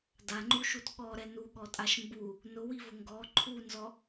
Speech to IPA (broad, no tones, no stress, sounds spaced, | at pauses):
d a ŋ͡ǃ u ʃ u t ɠ ɔ ɾ ɛ n u ɠ ɔ tʼ a ʃ m b u | n ʊ w i v ʊ ŋ ɡ ɔ ǃʰ u n z ɔ